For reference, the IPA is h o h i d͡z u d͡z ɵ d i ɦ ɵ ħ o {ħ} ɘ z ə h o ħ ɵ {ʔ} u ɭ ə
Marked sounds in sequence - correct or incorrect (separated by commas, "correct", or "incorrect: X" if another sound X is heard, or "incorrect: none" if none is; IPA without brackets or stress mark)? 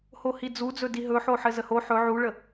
correct, incorrect: ʕ